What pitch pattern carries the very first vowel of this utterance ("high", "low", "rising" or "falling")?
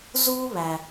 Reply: high